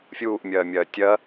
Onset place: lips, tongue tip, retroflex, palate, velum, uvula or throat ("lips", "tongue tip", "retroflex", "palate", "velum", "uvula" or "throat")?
lips